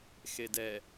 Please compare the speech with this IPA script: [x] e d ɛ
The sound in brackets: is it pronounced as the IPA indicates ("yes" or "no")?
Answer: yes